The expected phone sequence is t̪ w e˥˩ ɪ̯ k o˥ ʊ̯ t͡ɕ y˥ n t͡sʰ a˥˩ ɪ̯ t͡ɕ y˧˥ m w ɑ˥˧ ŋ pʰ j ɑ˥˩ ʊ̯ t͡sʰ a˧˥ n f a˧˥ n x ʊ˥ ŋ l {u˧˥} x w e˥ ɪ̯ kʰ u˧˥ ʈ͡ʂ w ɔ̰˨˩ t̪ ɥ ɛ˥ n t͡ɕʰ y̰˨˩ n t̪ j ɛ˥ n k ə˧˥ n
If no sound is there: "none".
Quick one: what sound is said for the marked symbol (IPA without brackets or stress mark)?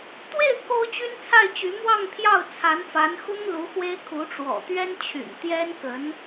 u˧˥